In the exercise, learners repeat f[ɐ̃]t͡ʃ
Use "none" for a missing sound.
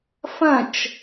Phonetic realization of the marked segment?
ɐ̃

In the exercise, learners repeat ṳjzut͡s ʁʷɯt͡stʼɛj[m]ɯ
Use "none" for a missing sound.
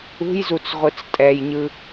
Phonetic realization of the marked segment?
ɲ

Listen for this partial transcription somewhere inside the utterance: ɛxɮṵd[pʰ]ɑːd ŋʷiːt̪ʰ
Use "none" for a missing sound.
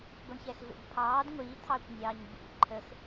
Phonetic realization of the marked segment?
pʰ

